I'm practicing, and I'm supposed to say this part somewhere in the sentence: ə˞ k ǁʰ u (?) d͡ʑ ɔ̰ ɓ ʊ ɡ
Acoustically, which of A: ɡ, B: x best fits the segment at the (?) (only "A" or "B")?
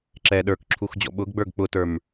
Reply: B